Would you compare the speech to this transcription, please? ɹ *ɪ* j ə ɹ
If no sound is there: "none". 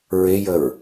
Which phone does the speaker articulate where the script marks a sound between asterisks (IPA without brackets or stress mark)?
ɪ